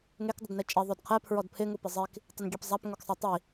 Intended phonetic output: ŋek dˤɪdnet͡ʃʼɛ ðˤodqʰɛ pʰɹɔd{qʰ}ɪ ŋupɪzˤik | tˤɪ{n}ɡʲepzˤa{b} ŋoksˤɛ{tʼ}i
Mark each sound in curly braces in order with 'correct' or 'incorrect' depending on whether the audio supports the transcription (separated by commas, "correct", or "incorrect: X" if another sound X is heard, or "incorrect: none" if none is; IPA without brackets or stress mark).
incorrect: pʰ, correct, incorrect: p, incorrect: tˤ